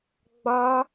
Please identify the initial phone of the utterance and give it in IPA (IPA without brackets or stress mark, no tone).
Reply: ɡ͡b